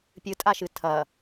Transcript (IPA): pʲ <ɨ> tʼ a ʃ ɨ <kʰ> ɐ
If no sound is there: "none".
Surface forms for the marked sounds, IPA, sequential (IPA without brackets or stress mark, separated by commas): ɨ, tʰ